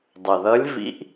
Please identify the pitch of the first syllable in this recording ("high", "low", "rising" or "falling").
low